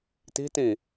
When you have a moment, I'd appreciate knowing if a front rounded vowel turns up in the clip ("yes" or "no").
no